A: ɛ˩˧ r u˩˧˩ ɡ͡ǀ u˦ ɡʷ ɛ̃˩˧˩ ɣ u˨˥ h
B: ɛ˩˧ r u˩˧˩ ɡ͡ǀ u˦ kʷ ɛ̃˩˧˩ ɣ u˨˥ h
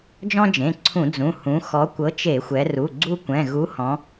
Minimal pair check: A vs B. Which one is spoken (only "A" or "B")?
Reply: B